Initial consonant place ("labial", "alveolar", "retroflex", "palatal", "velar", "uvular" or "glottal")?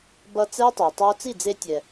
labial